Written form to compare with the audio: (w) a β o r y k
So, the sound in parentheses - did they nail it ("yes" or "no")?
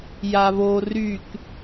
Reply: no